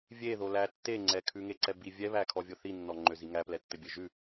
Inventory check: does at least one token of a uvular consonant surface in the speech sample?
no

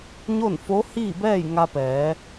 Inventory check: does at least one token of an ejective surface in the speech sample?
no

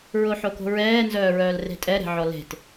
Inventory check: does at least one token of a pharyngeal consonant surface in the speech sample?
yes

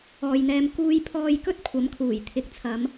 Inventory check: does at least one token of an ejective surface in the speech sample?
no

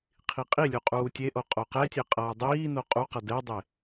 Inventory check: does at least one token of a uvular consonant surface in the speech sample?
yes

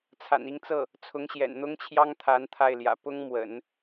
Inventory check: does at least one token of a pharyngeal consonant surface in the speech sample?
no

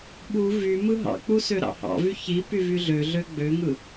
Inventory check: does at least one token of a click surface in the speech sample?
no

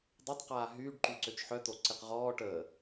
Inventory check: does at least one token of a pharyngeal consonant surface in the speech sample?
yes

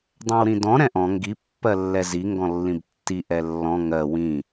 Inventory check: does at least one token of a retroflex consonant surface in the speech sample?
no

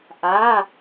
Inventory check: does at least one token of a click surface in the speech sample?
no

